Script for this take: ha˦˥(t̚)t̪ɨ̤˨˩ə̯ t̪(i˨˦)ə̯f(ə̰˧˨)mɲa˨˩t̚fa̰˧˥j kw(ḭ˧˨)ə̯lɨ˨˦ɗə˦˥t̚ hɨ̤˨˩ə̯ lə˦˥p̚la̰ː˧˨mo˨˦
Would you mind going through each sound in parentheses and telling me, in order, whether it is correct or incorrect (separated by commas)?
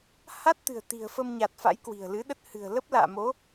correct, incorrect, incorrect, incorrect